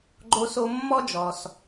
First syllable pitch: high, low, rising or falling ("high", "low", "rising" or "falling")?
high